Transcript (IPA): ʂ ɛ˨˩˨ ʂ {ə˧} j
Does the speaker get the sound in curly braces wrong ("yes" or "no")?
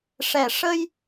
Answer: no